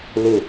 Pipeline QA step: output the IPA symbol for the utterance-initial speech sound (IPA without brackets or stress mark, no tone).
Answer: l